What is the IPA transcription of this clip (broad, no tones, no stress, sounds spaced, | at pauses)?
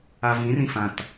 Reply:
a v ĩ r ĩ f ã t